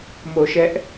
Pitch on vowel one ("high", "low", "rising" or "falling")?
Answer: low